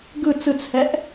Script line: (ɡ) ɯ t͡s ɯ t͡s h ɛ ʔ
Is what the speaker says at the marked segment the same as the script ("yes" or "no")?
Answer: yes